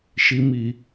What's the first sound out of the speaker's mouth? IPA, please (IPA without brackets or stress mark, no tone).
ʃ